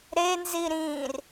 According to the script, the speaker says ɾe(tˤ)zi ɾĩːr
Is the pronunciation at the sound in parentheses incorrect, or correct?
incorrect